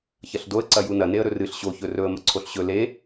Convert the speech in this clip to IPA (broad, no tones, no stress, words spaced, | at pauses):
çɐɬdoə̯ ǀɐjunɐ neə̯ɾɵrɨɬ ɕo çɵrɵə̯ mɐǀʰoɬɕɵ le